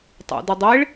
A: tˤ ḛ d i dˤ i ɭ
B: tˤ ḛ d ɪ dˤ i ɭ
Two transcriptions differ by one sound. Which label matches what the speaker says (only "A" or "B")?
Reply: B